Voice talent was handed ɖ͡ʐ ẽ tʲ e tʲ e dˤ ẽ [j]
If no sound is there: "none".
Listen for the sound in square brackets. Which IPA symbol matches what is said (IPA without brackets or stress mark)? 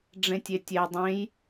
j